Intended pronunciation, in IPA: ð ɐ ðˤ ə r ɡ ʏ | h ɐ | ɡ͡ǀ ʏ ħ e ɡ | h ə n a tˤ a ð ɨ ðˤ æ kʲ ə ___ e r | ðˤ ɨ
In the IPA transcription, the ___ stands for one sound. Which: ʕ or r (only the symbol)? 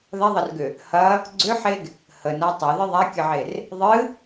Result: ʕ